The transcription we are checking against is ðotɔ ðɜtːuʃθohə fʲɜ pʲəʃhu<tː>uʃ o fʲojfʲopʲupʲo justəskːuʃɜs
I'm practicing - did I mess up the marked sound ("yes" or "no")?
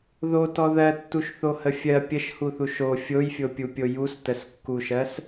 yes